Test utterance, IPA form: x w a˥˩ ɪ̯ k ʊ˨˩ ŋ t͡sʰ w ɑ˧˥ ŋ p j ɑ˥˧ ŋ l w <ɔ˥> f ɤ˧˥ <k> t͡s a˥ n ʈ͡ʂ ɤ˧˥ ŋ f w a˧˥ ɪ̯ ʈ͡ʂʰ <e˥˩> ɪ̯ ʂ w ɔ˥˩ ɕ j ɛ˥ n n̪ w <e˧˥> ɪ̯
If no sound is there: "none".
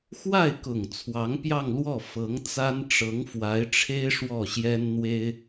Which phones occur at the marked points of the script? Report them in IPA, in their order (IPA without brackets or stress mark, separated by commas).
ɔ˥˩, ŋ, e˥, e˥